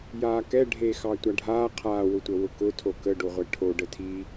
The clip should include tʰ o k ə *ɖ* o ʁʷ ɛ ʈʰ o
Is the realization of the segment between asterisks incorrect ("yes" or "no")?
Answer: no